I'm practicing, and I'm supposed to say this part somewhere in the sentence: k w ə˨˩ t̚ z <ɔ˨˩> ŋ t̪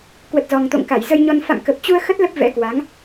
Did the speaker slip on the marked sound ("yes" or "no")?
no